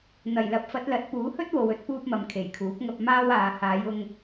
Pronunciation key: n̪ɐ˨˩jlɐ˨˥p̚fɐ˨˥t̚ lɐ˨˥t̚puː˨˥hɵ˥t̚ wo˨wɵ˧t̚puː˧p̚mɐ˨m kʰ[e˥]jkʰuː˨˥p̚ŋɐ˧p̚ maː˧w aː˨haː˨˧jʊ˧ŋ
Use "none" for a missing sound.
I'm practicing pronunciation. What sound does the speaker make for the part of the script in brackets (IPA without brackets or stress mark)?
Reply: e˨˩